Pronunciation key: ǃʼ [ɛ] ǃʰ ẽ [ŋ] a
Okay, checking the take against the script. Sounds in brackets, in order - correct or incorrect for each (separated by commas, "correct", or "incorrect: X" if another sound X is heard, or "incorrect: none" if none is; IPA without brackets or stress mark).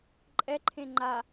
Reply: correct, incorrect: ŋ͡ǃ